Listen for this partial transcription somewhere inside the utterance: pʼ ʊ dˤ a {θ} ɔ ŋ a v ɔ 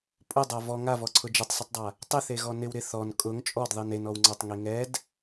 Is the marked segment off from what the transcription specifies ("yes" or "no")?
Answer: yes